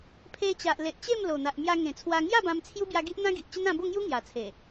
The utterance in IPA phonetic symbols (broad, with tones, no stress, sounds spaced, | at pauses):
pʰ e˧ t͡ɕ a˨ ʔ l e˨ ʔ t͡ɕ e˥˧ m l o˨˩ n̪ a˨ ʔ m j a˧ ŋ ẽ˨˩ t͡sʰ w a˧ ŋ j a˥˧ b ã˧ m t͡sʰ j u˦ b j a˧ ɡ i˦ ʔ n̪ ã˦ ɡ i˨ ʔ t͡ɕ ə˦ n ã˧ b o˥˧ ŋ j u˦ ŋ j a˨˩ t͡sʰ e˨˩